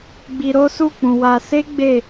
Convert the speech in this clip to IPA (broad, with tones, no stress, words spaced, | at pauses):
ɡ͡bi˧ɾo˦su˦˨k͡pũ˨ wa˧ se˦ ɡ͡be˦˨